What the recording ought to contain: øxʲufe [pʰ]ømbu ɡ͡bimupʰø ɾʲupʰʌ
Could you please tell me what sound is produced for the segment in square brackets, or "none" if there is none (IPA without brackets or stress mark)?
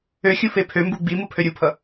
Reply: pʰ